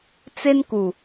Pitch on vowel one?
high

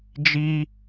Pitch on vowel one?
high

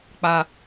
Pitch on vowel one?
high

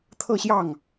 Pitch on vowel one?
falling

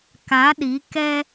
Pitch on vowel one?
rising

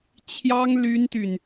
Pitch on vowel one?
high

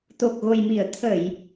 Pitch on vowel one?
low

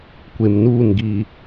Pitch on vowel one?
low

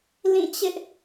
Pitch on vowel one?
falling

